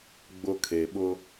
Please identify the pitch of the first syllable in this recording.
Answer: high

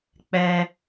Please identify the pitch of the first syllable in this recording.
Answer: high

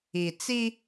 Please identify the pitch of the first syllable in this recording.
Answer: low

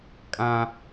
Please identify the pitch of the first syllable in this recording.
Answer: high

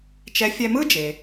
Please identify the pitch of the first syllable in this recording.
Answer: rising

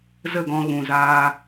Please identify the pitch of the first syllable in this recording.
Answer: falling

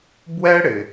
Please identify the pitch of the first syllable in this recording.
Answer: high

